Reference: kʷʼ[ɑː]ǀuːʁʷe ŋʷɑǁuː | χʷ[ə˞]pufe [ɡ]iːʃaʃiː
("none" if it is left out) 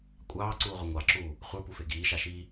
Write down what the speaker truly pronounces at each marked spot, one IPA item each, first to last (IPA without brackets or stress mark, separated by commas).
ɑː, ə˞, ɡ